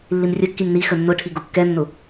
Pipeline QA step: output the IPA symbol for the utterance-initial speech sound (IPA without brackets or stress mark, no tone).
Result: lː